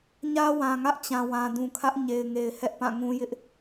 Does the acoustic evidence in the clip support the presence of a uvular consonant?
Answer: no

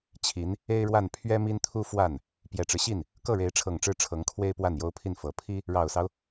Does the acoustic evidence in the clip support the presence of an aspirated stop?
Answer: yes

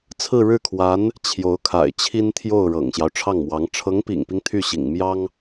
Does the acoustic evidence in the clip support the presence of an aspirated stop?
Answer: yes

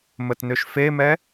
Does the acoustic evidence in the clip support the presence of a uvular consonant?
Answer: no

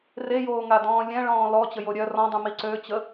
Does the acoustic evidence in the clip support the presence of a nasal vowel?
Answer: yes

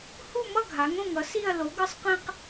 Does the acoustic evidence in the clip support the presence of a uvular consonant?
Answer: yes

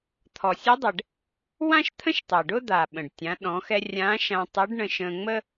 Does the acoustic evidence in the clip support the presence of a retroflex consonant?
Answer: yes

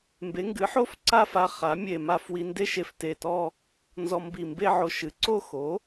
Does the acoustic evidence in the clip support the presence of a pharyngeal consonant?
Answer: yes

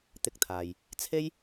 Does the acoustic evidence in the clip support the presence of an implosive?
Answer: no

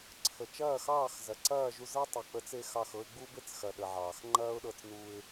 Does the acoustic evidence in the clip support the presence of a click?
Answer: yes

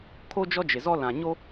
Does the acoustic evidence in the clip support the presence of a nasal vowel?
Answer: yes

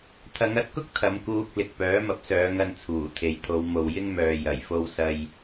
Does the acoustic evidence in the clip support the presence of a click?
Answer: no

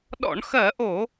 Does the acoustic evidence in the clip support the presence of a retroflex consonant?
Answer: yes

